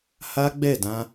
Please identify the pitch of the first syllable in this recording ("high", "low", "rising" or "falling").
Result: high